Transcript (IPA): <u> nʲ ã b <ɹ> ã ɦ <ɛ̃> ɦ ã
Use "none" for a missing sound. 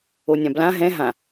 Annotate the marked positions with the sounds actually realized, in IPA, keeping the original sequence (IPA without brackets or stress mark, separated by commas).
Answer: o, l, ɛ̃